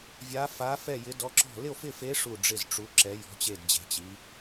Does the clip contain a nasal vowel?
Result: no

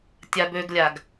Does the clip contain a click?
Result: no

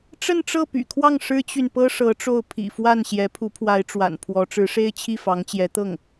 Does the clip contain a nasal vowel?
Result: no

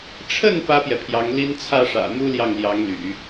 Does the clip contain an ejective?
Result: no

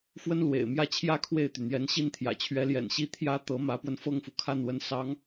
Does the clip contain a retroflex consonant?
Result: no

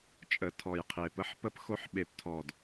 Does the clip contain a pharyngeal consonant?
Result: yes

